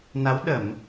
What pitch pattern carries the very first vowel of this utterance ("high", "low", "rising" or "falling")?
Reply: rising